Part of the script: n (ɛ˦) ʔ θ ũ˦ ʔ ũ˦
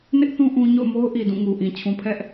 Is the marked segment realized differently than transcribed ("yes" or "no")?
yes